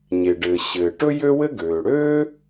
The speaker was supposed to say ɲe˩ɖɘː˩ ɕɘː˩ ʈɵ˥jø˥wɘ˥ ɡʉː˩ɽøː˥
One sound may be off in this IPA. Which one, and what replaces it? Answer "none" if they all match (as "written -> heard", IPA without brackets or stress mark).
ʉː˩ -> øː˩